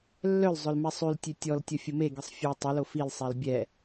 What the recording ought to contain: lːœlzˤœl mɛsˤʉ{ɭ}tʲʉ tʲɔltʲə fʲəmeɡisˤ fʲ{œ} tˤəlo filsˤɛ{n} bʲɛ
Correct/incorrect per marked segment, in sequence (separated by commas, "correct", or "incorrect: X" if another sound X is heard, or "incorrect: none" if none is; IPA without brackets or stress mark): incorrect: l, correct, incorrect: l